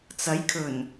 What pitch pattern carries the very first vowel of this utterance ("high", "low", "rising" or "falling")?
rising